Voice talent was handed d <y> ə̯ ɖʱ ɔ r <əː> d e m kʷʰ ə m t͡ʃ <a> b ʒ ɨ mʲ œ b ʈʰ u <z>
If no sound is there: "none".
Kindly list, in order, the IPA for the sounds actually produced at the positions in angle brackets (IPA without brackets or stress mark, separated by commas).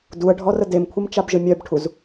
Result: u, ə, a, z